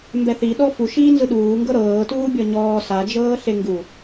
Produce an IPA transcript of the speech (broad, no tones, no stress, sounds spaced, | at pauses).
m b ɛ θ i ɗ ɔ f u ʃ iː n z ɯ ɗ uː ŋ ɡ ɤ ɾ ɤː t uː bʲ ɔ ɲ ɔː s a d͡ʒ ɤː ɬ e ŋ ɡ u